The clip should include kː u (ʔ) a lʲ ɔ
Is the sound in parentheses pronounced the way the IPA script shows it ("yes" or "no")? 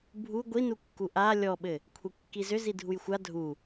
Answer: yes